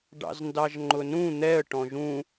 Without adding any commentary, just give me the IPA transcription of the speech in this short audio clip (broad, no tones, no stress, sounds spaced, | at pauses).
ɖ ɑ̰ z n d ɑ ʒ ŋ͡ǃ ʊ n ũ n̪ ɛ ə̯ ʈ ɔ̃ ʒ ũ